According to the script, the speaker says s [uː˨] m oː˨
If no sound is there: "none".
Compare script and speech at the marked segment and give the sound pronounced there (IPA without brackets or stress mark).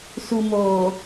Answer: u˨